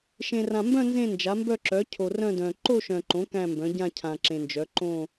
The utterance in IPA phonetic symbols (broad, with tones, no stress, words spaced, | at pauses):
ʃẽ˨rã˨mbœ̃˥˧ nzẽ˥˧nd͡ʒa˩˥mbœ˥˧ǁœ˩˥ cʰo˨rœ̃˥˧dœ̃˨ ǃo˥˧ʃœ̃˨ǃõ˩˥ kæ̃˥˧mbœ̃˩˥ ɟã˥˧cʰã˨ǁẽ˨nd͡ʒœ˩˥ ǃõ˥˧